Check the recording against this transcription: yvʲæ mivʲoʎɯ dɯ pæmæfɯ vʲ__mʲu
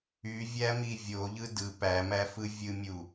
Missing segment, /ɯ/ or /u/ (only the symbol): ɯ